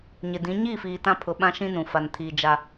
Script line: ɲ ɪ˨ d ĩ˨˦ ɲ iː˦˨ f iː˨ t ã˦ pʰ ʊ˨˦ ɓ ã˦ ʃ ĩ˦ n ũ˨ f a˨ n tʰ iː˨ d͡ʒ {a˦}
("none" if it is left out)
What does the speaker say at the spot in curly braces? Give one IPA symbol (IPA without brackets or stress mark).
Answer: a˦